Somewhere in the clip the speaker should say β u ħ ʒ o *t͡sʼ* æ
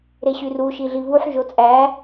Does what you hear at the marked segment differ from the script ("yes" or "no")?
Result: no